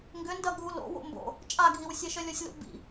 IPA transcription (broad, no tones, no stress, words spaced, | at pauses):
ŋɡʏndɐ ɡʱulo̰ wo̰mbo̰ | t͡ʃʼaɡʱiwsʲeʃœ lʲɔsʲlṵbḭ